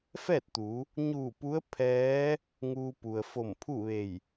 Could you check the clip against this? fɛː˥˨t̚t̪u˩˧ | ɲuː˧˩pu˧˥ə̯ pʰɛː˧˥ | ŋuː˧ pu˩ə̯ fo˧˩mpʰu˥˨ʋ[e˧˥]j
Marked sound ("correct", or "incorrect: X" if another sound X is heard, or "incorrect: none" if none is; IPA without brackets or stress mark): incorrect: e˧˩